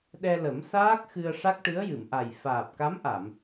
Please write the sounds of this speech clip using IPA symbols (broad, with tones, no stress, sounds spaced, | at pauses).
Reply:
ɗ ɛ˧ l ə˨˩˦ m s aː˦˥ k̚ x ɨ˧ ə̯ ʂ a˦˥ k̚ ʈ ɨ˧˥ ə̯ j ɨ˨˩˨ m ʔ a˨˩ j f aː˨˩ p̚ k a˧˥ m ʔ a˨˩˨ m